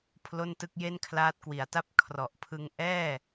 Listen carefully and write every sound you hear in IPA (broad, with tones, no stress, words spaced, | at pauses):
pʰlo˥˩ntɯ˥˩k̚ je˥˩nkʰlaː˦˥t̚kwi˩˦a̯ta˥˩p̚ kʰrɔ˨˩ʔpʰɯ˧ŋ ʔɛː˥˩